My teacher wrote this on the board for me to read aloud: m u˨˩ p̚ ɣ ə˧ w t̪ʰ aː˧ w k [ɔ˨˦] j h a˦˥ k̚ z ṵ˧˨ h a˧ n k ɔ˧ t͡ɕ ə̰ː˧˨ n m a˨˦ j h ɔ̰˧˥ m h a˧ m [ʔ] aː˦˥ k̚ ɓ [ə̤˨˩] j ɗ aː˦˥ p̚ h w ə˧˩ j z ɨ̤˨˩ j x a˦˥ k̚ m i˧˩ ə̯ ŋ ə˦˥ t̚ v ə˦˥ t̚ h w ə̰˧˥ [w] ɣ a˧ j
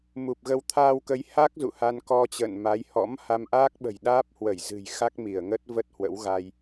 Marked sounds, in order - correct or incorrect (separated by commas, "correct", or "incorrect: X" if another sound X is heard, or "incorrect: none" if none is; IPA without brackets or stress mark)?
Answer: incorrect: ə˨˦, correct, correct, correct